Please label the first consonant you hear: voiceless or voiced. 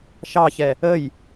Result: voiceless